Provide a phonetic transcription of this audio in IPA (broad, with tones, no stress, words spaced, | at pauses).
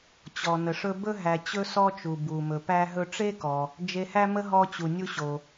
t͡ɕɔ˩ nə˩ʂɵ˧ bɵ˥ ɦæ˩ t͡ɕɵ˥sɔ˥t͡ʃu˩ bu˩mɵ˩ pæ˧ ɦɵ˧ʈ͡ʂe˥kɔ˩ | d͡ʒe˧hæ˥mə˥ ɦɔ˧t͡ɕu˩nʲu˧ɕo˩